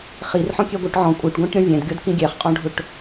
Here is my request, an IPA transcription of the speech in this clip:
χ i r ħ ɔ̃ kʲ ɛ ɡʷ ə˞ ʈ ʕ ɔ̃ kʷʼ ə˞ ʈ ɡʷ æ̃ ʈ ɾʲ ɔ̃ vʲ ɛ̃ d ɡʲ ɔ d k ĩ ɡʲ ɛ χ qʼ ɔ̃ ɖʱ ʊ ʈ

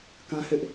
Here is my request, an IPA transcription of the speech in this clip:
k ã˦ h ɪ˦ ʔ

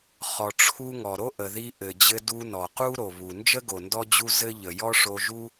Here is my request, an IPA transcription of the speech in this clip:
χ ɔ˨ ʈ͡ʂʰ u˧ ŋ ɔ˨ ɾ o˦ ʔ ə˨ ð i˧ ʔ ɘ˨ d͡ʑ ɘ˧ d u˧ n ɔ˨ q u˦ ɾ o˨ β u˨ n d͡ʒ ə˦ ɡ o˨ n d ɔ˦ d͡ʑ u˦ z ɘ˦ ʎ ə˨ j ɔ˦ ʂ o˧ ʒ u˦

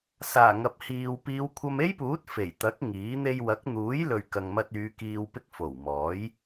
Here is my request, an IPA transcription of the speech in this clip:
s aː˨˩ ŋ ɐ˨ p̚ h iː˨ w p iː˨˧ w kʷʰ ɐ˧ m e˥ j p uː˨˥ t̚ f e˨˩ j t̪ ɐ˨˥ k̚ ŋ iː˨˥ n̪ e˧ j w ɐ˨˥ k̚ n̪ uː˨˥ j l ɵ˨ ɥ k ɐ˨ ŋ m ɐ˧ t̚ yː˨˧ k iː˨ w p ɪ˧ k̚ f o˨˩ w m ɔː˨˥ j

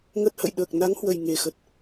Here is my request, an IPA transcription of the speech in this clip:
ŋ ə˦˥ t̚ h ə̰˧˨ j ɗ əː˨˩ k̚ n a˨˦ ŋ h w ə˨˩ j ŋ e˨˩ x ə˨˩ t̚

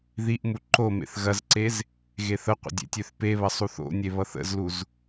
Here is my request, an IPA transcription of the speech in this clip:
ð i ʔ m u ǃ o m ḛ θ ɣ ɐ z ǀ e z | ɣ e θ ə qʷ ə̰ dʲ ḛ tʲ ø θ p e β ɐ sˤ u θ o̰ nʲ e β ʌ θ ə̰ z l u z

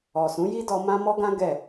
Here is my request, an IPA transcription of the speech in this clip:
ɔ˨ s ũ˨˦ j i˦ d ɔ˧ m ã˦ m ɔ˦ ɡ ã˦ ɡ ɛ˦˨

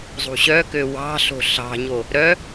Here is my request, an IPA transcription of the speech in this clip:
zˤ ṳ ɕ œ k ø w ɑ̤ ɬ o̤ ɬ ɑ̤ ɲ o | ɾ œ

